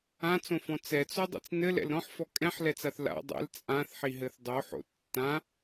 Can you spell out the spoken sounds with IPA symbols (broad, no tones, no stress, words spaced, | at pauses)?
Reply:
ãt͡sõfɔ̃ t͡sɛt͡sodˤḭt͡s nɘlɛ̰l ɾɔ̃ħfɔ kʼɛ̃ħlɛt͡saθ la̰ dˤɛ̰l t͡sʼãθħiɦɘθ dˤoħo̰ tːã